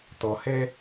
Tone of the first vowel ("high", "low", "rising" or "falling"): low